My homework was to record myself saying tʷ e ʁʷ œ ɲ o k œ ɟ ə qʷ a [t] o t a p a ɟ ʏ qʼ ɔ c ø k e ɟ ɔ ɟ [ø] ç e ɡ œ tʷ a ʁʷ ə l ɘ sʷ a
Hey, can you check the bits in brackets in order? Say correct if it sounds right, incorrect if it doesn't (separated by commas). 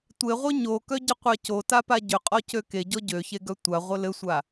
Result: incorrect, correct